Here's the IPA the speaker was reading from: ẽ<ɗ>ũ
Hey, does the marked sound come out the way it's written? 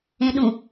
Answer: yes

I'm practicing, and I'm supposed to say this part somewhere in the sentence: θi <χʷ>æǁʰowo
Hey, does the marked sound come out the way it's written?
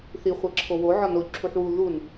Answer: yes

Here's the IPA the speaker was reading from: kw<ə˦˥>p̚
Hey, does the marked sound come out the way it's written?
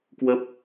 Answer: yes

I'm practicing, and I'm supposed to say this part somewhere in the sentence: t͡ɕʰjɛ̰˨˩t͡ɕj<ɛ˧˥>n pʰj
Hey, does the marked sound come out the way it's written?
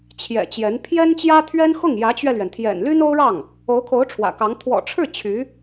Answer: yes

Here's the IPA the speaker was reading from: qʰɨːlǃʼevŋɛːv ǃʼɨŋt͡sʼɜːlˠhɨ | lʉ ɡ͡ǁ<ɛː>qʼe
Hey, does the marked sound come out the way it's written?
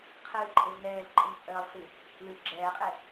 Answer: yes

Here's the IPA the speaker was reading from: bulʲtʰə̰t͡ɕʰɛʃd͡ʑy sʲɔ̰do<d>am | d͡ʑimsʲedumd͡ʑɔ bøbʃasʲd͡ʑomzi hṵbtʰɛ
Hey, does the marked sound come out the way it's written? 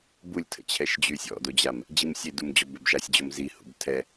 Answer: no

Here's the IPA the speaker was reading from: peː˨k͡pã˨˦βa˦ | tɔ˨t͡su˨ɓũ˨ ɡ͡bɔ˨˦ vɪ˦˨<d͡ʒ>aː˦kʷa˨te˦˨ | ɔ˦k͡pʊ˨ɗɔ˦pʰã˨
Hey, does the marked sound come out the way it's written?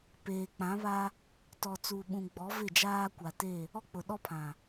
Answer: yes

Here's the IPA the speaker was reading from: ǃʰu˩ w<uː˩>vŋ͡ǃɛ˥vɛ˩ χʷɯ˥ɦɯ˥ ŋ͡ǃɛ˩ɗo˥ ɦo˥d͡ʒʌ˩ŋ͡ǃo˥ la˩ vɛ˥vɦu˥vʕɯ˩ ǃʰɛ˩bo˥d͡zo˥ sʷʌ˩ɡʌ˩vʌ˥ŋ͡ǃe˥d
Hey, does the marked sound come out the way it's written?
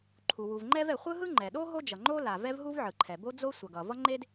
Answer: no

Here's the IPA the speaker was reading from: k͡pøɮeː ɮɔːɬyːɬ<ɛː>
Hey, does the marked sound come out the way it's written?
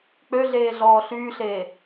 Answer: no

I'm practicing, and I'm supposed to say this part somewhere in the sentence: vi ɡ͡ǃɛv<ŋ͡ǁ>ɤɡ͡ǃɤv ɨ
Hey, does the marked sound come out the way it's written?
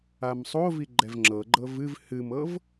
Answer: yes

